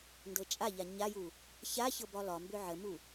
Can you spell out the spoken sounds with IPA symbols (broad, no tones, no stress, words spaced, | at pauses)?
ndɤt͡ʃʼaʎa ɲaju | ça çɤbɒlɒmbʏ ʕəmu